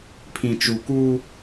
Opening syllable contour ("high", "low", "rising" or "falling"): low